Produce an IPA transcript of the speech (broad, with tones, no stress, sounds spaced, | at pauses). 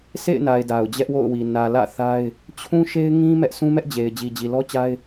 sʰ ḛ˦˨ ɪ̯ n a˨ ɪ̯ d a˨ ʊ̯ d͡ʑ ɛ˦ ʔ w o̰˦˨ ʊ̯ w i˨ n ä˨ l ä̰˦˨ θ a˦ ɪ̯ | t͡ɕʰ ũ˦ ʃ e˦ ɪ̯ ŋ ĩ˦ m ɛ˦ ʔ sʰ ũ˦ m ɛ˦ ʔ d͡ʑ e˨ ɪ̯ d͡ʑ i˨ d͡ʑ i˨ l ɔ˦ t͡ɕ a˦ ɪ̯